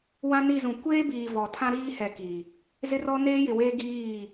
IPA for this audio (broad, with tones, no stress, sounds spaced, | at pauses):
w ã˦ n i˦˨ z ũ˨ kʷ eː˦ b iː˨ v ɔ˨ tʰ ã˦ ɾ iː˦ h ɛ˨ k i˨ | z ɪ˦ r ɔ˦ n eː˦ j ɪ˨ w eː˦ ɡ iː˦˨